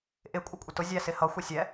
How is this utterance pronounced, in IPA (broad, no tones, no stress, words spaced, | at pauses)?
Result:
ʔɪ kʷʼʌkʷʼətʊ zʲæsɪhʌ xʷɪsʲɛ